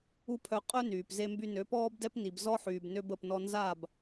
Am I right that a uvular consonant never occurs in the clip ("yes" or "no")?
no